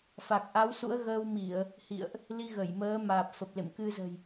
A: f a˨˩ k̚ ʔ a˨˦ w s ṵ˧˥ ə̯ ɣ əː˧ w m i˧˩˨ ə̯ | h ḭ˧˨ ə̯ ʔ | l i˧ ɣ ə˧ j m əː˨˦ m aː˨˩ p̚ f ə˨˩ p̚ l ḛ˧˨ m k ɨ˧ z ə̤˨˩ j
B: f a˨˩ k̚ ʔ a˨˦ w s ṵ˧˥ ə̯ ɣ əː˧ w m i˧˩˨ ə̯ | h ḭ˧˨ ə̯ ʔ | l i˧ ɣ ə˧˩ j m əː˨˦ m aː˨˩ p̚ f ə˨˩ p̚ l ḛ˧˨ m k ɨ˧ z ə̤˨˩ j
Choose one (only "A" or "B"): B